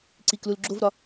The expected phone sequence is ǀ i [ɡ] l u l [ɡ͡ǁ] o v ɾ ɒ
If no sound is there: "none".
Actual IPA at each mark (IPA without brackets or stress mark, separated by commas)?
k, ɡ͡ǁ